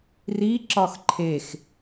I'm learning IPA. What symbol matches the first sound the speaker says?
r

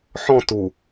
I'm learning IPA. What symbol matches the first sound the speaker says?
ħ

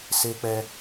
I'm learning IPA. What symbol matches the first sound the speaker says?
s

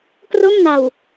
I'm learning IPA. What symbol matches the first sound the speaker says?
k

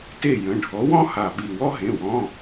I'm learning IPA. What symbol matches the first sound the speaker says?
t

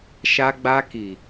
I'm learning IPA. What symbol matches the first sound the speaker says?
ʃ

